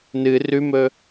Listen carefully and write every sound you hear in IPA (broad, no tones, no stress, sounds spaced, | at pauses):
n ɨ r ʉ m ɵ